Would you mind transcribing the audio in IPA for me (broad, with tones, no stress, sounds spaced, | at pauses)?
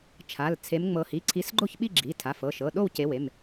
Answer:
t͡ʃʰ a˩˧˩ l t͡sʰ e˨˦ m ŋ͡m ɤ˨˦ h i˩˧˩ ǀʰ i˨˦ s ɡ͡ǃ o˥˧ ç ɓ i˥˧ ɡ͡ǁ i˩˧˩ tʰ a˩˧˩ f ɤ˩˧˩ ʃ ɤ˩˧˩ ɗ o˥˧ w c e˨˦ w e˩˧˩ m